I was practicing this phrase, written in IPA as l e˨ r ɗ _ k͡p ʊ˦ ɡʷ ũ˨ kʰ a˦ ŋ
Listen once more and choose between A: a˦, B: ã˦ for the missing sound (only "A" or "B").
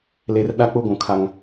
A